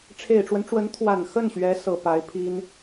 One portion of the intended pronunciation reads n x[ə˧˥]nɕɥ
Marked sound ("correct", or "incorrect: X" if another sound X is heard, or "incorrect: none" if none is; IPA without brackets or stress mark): incorrect: ə˥˩